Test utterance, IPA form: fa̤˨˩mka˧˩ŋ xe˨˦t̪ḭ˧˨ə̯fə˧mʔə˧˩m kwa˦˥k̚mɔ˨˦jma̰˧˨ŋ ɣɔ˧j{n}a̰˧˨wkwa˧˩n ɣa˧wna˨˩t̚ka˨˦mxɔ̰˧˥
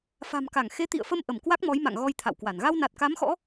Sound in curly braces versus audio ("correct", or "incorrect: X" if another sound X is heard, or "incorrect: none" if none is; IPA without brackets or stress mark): incorrect: t̪ʰ